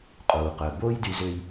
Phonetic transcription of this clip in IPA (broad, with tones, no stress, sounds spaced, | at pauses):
qʼ uː˩ q œ˩ b oː˥ j d y˧ z ø˧ j